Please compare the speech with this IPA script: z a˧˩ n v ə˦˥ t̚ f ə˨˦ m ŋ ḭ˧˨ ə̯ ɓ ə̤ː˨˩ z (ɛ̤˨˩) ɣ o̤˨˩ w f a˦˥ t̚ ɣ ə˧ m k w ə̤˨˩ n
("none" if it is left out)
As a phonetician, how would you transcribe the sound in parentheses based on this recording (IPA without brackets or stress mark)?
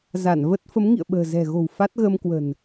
ɛ̤˨˩